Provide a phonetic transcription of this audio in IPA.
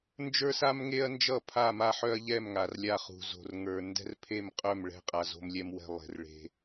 n d͡ʒ ə˞˦ s a˦ m ŋ e˦ ɐ̯ n d͡ʒ ʌ˦˨ pʰ a˦˨ m a˦ ħ œ˦ ɐ̯ ʎ ɛ˦˨ m ŋ a˨ r lʲ a˦˨ χ ṳ˨ z o̤˨ r ŋ ə˞˨ n d ɛ̤˦ r pʰ e˦˨ m qʼ œ˦˨ m ɭ ɛ̤˦ qʼ a˨ z o̤˦ m lʲ ɛ˦ m w ɛ̤˦ lˠ e̤˨ r ɭ e̤˦

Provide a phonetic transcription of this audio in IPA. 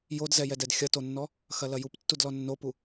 j o d z ɛ j ɛ d ɛ d xʲ ɐ t o nː ɔ | x ɐ l ɐ j u p tː u d l ɔ nː o p u

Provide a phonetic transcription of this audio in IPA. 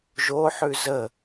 ʒ o ħ ʉ z ə

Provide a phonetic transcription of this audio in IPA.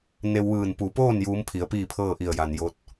n e˧ w ʋ ɯː˧˩ n p u˩˧ p oː˥˨ n j uː˧˥ m pʰ i˩˧ ə̯ p iː˥˨ pʰ ɤː˥˨ ʔ i˧˩ ə̯ j a˩ n j o˧˥ t̚

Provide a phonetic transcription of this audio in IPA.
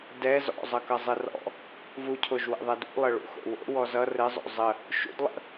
d ɛ z ɔ̰ zˤ ʌ k ʌ zˤ ɘ r ɔ̰ | v u cʰ o ʒ w ɛ̰ ðˤ ɛ d ṵ lˠ ə ɭ ṵ x o̰ w o̰ w ɔ z ʌ r ɘ zˤ o̰ zˤ ə | ʃ ṵ d lˠ ə̰

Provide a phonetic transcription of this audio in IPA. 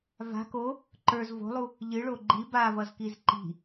v a̤ k o | ǃ ə˞ z v o̤ lˠ u | ʎ ɨ ɭ o ɡ͡ǃ i b a v ʌ z k i z ǃ i̤

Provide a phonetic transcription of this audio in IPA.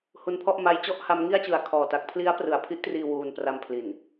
h u˦˥ n pʰ ɔ˥˩ ʔ m a˦˥ j t͡ɕ ɔ˥˩ ʔ h a˦˥ m ŋ i˥˩ a̯ t͡ɕ ɯ˨˩ a̯ kʰ ɔː˨˩ t a˦˥ k̚ pʰ l i˦˥ a̯ p r ɯ˩˦ a̯ pʰ i˥˩ ʔ t r iː˧ w uː˧ n p r a˧ m pʰ l i˨˩ n

